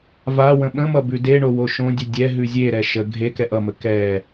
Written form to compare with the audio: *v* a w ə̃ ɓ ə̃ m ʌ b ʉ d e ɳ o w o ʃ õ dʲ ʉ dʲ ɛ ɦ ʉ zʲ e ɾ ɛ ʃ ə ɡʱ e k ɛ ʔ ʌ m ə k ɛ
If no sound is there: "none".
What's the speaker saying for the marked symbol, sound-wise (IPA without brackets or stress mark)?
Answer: v